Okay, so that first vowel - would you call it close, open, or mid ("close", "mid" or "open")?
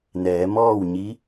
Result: mid